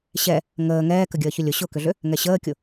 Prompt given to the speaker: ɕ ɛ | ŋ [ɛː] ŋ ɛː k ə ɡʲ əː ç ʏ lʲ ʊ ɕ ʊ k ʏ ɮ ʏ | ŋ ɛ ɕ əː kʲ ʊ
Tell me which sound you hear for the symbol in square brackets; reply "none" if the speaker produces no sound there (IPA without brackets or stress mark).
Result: əː